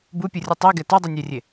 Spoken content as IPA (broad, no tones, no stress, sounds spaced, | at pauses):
b u pʲ u rʲ ɯ tˤ i ɡ ɛ t o dˤ u nʲ ɛ rʲ e